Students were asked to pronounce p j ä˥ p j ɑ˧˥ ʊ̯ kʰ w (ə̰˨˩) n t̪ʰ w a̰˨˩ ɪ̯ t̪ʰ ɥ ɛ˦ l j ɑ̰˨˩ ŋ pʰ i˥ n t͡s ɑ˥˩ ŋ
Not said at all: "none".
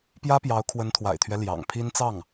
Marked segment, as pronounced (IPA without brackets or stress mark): ə˧˥